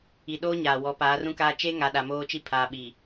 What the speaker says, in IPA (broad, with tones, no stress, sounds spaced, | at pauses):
i˨ ɗ oː˦ ɲ aː˨ w ɔ˨˦ p aː˨˦ r ũ˦ k aː˦ t͡ʃ e˦ ŋ a˨ ɗ a˨ m oː˦ t͡ʃ i˦ pʰ aː˨ ɓ i˨